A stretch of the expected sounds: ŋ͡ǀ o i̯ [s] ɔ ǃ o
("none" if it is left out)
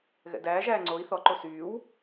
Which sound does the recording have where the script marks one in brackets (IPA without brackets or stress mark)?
θ